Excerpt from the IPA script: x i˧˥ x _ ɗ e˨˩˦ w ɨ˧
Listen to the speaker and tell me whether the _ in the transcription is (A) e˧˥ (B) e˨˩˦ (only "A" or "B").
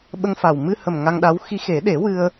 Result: B